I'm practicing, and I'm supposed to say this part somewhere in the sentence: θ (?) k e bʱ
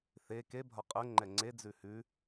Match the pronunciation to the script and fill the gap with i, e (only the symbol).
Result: e